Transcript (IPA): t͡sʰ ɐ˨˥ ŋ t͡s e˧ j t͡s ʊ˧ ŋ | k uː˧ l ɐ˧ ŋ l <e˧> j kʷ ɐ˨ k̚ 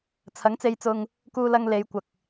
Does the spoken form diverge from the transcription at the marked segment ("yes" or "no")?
yes